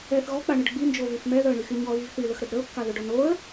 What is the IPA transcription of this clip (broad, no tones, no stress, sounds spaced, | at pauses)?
ɛ θ ɣ ɔ k͡p a ɳ ə ɖ ɡ͡b i n d͡ʒ o v y f m ɛ ð œ ə̯ ɳ y x y ɲ ɔ ɣ i v θ y l ə x ɾ ə d ɾ ə ʊ̯ kː a ð œ ɖ ɔ n o ə̯